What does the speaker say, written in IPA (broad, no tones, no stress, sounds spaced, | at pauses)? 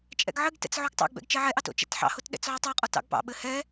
t͡ʃʼ ɛ̰ ɡ ʕ ɘ ɡ t ɛ̰ t͡s ʕ o ɡ tˤ ɑ̰ ɡ b ɛ̰ ɡ t͡ʃ ɛ ʕ ɛ ʔ ɑ t o̰ t͡ʃ ɛ̰ t ħ ɑ̰ h o t ɗ ɛ̰ t͡s ʕ o tˤ a qʼ ɔ t ɑ̰ ɡ p ɑ̰ ɓ ɘ h ɛ